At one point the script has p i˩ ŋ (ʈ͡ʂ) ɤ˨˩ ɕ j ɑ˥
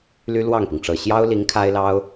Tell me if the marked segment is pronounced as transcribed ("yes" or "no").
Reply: yes